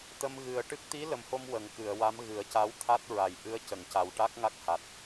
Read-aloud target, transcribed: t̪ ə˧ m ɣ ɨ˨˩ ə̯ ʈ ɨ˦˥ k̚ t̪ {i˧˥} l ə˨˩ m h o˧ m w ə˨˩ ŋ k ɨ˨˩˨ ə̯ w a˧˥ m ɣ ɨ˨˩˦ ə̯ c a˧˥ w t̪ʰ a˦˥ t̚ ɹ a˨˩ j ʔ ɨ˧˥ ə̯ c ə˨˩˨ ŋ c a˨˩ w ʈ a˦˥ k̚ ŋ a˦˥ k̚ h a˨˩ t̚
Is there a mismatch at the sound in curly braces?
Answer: no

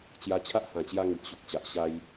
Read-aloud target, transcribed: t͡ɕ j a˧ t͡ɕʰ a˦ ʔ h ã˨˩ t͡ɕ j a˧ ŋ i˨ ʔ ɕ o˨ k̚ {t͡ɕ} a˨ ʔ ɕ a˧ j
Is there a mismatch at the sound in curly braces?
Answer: no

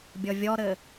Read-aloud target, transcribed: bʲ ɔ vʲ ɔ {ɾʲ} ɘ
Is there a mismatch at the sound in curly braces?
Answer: yes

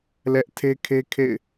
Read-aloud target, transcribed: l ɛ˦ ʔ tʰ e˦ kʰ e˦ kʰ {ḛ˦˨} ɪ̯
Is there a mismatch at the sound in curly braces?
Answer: no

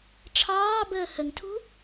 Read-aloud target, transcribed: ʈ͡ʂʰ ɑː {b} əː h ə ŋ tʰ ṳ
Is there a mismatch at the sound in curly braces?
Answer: no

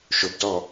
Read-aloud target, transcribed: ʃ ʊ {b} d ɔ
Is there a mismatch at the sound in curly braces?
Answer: no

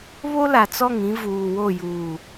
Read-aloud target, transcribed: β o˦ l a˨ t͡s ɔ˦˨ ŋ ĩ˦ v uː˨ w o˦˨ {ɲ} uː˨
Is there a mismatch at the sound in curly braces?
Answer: yes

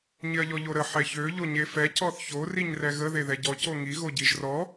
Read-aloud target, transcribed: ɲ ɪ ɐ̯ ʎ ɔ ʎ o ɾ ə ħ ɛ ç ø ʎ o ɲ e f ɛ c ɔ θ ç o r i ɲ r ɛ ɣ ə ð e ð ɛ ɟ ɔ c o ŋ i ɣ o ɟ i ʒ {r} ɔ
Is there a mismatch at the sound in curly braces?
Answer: no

